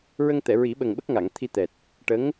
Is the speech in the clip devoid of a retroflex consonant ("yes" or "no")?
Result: no